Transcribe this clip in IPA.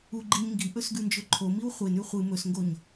uɡ͡ǃiɲ ŋɡiʔɵsɡʉnd͡ʒɵ ǃʰomiw χʷenʉ χʷɨ mɵsŋɡoɲ

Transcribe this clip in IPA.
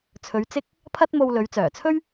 t͡sʰɵ˨˧ɥt͡sɪ˥k̚ | pʰɐ˥t̚mo˧wlɵ˨˧ɥ t͡sœː˨˩t͡sʰɵ˥ɥ

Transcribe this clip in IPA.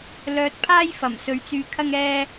lœː˧t̚pʰaː˥jfɐ˨˩m sɵ˧ɥt͡syː˧kʰɐ˥ŋ ɛː˥

